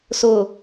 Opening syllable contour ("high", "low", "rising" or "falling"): low